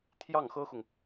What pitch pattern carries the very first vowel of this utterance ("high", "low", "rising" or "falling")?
falling